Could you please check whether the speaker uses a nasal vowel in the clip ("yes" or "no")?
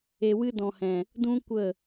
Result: yes